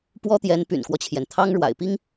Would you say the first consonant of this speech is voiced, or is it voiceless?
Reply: voiceless